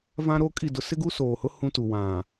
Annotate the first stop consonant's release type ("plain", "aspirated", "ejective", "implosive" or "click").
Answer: ejective